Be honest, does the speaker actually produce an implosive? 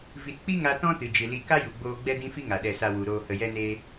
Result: yes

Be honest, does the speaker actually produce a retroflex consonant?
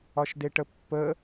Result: yes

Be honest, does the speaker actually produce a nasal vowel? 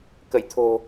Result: no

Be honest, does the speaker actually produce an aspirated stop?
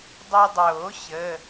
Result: no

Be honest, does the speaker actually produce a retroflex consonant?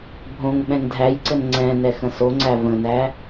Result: no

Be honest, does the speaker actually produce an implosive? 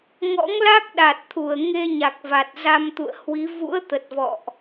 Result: yes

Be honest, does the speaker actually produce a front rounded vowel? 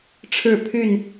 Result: yes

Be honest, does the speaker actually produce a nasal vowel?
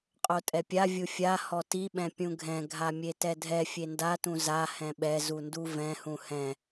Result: yes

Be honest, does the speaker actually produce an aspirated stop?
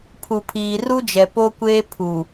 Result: yes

